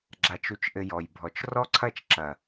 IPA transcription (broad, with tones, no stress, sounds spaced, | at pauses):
ɡ͡ǁ a˨ t͡ʃ u˨ t͡ʃ ʔ ɘ˨ j ɔ˨ j bʱ ɔ˨ t͡ʃ r ɔ˦ ǀʰ ɐ˦˨ t͡ʃ ǁ ɐ˨